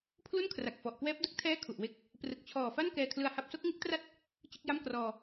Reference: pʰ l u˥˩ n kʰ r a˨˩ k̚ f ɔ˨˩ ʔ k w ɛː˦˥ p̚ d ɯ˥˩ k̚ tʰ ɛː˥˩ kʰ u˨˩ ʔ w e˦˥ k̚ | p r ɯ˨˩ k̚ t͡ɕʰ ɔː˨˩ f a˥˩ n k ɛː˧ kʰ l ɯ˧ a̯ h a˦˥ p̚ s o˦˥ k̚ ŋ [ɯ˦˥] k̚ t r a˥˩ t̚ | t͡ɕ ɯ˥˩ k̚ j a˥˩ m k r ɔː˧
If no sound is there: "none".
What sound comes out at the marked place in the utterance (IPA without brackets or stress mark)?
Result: ɯ˦˥